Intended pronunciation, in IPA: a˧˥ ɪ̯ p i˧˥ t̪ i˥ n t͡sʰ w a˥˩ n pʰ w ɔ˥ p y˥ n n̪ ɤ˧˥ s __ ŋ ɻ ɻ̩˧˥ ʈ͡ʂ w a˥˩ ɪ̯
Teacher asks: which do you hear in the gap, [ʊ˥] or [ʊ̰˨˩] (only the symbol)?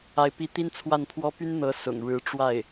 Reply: ʊ̰˨˩